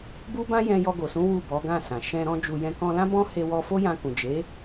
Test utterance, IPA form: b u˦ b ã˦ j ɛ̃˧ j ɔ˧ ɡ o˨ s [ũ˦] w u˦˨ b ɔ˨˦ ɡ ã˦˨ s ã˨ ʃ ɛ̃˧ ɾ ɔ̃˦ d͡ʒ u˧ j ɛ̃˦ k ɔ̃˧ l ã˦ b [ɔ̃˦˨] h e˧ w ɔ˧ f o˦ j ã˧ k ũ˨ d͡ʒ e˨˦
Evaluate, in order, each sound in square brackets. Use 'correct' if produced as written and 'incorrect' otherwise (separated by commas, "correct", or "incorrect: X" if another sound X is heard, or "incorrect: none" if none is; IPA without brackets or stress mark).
incorrect: ũ˨˦, incorrect: ɔ̃˦